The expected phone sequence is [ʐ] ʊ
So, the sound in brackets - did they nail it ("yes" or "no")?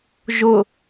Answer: no